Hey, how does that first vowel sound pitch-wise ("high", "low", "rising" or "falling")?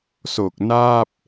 low